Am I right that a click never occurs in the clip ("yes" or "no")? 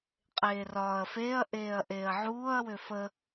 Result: yes